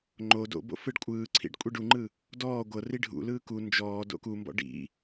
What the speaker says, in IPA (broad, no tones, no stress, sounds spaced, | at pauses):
ŋ͡ǃ o d o̰ b o̰ f ɯ ɖ kʷʼ ɯː ǀʰ ḭ ɖ kʷʼ i ɖ u ŋ͡ǃ ɯ | d ɔː ɡʷ ɤ r i ɖʱ ṵ l ɯː k u n d͡ʒ ɔː d o̰ k u m b ɔ̰ ɖ ḭ